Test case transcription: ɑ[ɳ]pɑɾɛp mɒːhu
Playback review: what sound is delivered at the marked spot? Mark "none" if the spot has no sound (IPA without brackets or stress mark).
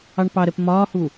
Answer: ɳ